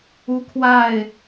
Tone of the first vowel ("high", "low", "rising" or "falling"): high